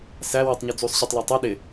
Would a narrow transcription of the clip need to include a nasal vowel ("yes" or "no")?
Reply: no